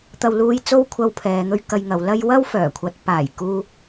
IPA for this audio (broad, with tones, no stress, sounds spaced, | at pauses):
t̪ ɐ˧ w l uː˧ j t͡s o˥ w kʷʰ ɐ˧ w pʰ ɛː˨ ŋ ɵ˧ ɥ k ɐ˧ j ŋ ɐ˨˧ w l ɐ˥ j w ɐ˥ w f œː˨˩ kʷʰ ɐ˨˥ t̚ p aː˨˩ j k uː˧